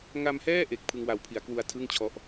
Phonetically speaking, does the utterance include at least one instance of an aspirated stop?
yes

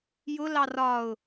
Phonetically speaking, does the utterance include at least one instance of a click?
no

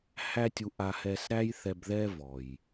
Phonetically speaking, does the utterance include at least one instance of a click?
no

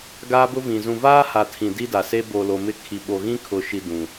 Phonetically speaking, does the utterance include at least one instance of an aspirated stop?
yes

